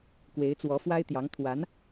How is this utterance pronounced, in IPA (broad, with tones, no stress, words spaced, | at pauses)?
kwe˧˥ɪ̯t͡swɔ˧˥fwa˥ɪ̯t̪jɑ˧˥ŋ t̪ʰwa˧˥n